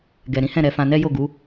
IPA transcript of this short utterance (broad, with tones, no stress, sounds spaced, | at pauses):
ɡ ɛ˨ ɾ ĩ˨˦ h ɛ̃˦˨ ɾ ɛ˧ f ã˧ n ɛ˦ j o˦˨ ɡ u˨˦